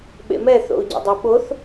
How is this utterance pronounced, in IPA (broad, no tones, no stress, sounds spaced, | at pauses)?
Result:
ɓ ḛ m ɛ θ o̰ u̯ ɟ ḛ dˤ e ɓ o θ